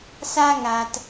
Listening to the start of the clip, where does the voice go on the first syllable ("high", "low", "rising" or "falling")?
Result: high